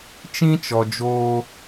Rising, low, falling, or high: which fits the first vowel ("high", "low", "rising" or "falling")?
high